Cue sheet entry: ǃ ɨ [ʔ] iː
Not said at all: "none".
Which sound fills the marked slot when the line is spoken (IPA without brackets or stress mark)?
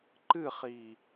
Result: χ